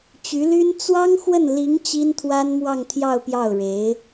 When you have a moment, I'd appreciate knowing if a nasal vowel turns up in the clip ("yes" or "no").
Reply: no